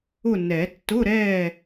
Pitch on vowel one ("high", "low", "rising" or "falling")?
falling